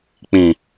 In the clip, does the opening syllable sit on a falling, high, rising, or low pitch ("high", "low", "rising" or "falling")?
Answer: low